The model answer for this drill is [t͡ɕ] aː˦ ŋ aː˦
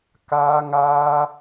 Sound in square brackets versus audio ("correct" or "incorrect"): incorrect